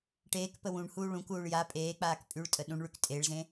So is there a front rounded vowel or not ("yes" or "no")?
yes